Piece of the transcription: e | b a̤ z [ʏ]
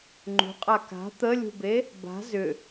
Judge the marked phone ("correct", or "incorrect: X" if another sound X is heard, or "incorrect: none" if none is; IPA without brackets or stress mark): correct